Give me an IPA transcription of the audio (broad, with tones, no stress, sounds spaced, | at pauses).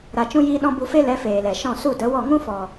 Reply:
ɾ a˨ t͡ʃ ũ˧ j iː˧ ɗ ɔ̃˧ b u˧ f e˦ l ɛ˨˦ f eː˨ l ɛ˨ ʃ ɔ̃˦˨ s u˦˨ d ə˨˦ w ɔ˦˨ ŋ ũ˦ f ɔ˨